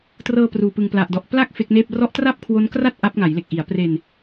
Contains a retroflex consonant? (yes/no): no